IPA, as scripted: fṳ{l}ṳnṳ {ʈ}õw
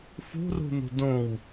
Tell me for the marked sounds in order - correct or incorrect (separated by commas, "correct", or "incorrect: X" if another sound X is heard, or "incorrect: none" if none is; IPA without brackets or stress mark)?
incorrect: r, incorrect: d